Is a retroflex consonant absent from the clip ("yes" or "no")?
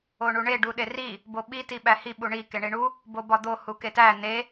no